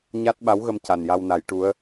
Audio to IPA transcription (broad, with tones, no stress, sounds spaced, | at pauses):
ɲ a˦˥ t̚ ɓ a˧˥ w ɣ ə˧ m c a˨˩ n j a˧ w n a˨˩˦ j ʈ u˧˥ ə̯